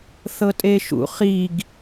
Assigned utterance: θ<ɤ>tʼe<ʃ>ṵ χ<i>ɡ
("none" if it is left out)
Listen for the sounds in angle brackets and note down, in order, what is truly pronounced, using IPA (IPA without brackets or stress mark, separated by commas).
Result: ɤ, ʃ, i